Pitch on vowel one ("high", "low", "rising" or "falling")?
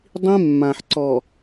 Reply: high